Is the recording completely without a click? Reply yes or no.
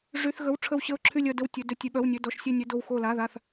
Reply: no